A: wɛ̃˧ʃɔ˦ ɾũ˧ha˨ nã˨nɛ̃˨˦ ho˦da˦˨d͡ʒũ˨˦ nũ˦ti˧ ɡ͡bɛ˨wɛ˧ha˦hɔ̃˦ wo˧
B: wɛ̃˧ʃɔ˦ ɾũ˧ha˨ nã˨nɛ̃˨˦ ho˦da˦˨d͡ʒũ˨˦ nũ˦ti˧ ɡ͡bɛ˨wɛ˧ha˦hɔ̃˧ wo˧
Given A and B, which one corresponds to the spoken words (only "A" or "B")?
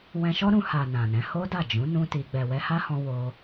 B